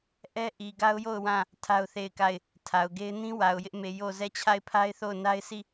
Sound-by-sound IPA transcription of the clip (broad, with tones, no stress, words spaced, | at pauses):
ʔɛ˦ʔi˨ ɡa˦ʊ̯jo˦˨ʊ̯ wã˦˨ | tʰa˦ʊ̯θe˦˨ɪ̯ka˦˨ɪ̯ | tʰa˨ʊ̯ɡe˦ɪ̯ nĩ˦ wa˨ʊ̯jɪ˦ʔ me˨ jo˦˨ zɛ˦˨t͡ɕʰa˦˨ɪ̯pʰa˦ɪ̯θo˦˨ʊ̯ na˦ɪ̯sʰi˦˨